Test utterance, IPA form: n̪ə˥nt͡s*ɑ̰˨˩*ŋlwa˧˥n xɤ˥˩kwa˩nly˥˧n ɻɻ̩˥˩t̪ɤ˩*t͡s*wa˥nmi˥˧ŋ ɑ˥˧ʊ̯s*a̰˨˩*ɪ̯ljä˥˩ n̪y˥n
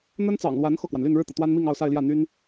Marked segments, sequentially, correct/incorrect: correct, incorrect, incorrect

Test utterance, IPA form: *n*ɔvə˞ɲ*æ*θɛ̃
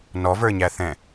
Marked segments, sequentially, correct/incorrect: correct, correct

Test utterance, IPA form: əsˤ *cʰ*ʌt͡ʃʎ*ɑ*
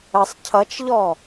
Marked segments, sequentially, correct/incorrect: correct, incorrect

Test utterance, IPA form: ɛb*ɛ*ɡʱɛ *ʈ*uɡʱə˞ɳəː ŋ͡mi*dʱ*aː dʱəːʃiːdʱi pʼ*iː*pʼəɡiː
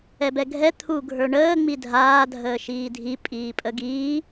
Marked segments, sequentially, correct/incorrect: correct, incorrect, correct, correct

